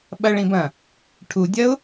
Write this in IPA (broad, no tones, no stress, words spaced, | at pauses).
ɓɐɭĩ bɐ̃ | ʈʰudʲɐʊ̯